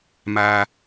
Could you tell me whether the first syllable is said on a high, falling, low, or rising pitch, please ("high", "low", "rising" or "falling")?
high